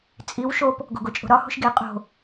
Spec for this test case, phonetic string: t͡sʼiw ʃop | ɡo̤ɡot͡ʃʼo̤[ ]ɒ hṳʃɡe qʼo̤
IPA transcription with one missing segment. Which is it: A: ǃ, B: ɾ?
B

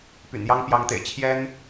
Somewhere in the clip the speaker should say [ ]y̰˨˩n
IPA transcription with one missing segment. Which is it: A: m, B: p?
B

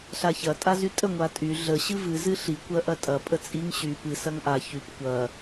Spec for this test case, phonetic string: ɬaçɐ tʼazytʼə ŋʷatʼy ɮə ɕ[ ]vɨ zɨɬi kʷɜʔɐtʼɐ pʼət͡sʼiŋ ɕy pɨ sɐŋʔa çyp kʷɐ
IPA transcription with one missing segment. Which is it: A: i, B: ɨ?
B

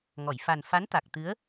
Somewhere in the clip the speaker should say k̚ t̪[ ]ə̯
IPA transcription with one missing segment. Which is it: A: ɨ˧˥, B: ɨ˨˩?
A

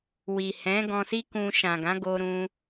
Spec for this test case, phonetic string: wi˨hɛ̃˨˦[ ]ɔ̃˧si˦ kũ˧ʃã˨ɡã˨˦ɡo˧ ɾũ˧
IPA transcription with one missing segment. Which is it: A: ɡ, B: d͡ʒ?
A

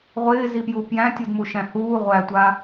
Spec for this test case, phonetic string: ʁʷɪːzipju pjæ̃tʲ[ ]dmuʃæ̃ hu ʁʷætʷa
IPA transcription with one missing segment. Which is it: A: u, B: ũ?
A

